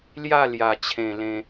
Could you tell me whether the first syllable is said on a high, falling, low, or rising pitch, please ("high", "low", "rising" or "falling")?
falling